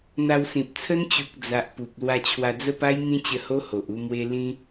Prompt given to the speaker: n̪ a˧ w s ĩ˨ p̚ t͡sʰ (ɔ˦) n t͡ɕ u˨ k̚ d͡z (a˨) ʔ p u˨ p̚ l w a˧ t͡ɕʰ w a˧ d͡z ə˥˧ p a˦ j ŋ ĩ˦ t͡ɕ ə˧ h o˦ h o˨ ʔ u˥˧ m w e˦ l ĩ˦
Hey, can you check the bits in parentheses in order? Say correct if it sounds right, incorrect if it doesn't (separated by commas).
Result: incorrect, correct